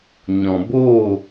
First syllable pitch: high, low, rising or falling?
low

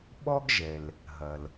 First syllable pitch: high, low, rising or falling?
high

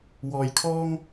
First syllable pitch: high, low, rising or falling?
low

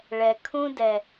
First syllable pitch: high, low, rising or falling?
low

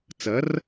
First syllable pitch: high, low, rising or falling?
rising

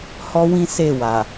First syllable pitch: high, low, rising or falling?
high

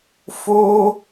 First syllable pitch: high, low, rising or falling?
high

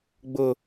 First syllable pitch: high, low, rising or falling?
high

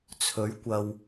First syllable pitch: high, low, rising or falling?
rising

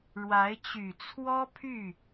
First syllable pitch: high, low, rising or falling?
rising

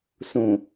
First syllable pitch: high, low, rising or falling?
low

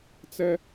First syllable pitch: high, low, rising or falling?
high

